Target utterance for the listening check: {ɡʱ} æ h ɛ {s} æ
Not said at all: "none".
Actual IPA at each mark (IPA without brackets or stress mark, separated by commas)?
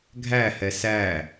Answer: ɡʱ, s